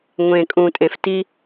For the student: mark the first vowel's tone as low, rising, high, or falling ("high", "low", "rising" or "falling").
low